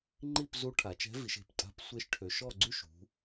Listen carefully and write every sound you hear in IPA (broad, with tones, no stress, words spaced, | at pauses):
ŋ͡ǃi˥˨pzu˧˥ ʈʰa˩˧t͡ʃɛ̤˧˥vi˩˧ʃ e̤˩˧ptʼa̤˧˥p sʷe˧˥ʃʈʰø˩˧ʃɔ˥˨ɡ͡ǀy˥˨ʃ ṳ˩˧